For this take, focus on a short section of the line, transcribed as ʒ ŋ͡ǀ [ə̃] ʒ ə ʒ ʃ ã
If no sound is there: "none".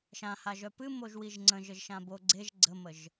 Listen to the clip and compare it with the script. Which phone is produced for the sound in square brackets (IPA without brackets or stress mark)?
ə̃